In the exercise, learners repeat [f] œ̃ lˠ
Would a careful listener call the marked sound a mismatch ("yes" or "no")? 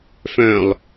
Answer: no